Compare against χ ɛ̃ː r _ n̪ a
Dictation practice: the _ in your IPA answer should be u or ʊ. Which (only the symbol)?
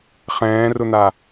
ʊ